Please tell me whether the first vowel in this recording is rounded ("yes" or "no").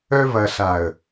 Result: yes